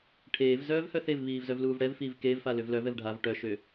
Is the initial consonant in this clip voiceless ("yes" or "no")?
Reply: yes